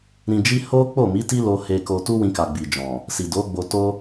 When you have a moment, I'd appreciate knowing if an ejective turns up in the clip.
no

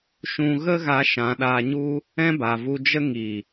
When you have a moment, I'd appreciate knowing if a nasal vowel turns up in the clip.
yes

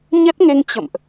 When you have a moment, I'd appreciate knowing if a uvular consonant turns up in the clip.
no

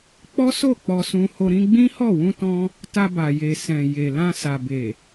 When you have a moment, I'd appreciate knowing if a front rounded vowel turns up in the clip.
no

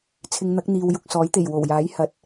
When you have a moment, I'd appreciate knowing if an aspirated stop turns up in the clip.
yes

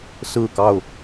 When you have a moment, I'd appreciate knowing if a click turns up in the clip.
no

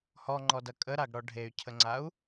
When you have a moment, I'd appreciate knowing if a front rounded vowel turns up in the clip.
yes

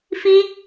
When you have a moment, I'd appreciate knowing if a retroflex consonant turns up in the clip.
no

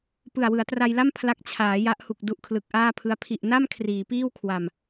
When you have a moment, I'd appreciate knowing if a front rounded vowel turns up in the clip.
no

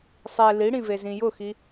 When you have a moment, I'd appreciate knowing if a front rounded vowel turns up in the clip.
no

